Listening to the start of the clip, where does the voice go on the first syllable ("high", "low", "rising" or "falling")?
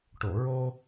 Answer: low